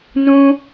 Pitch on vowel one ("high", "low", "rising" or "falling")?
high